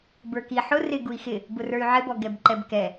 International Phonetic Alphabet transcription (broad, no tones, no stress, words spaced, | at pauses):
bə˞ki ħʊ rɪ ɡui̯xɪ | bʊrə˞y̯ʕɪbɔ ɡɛbǃɛbkɛ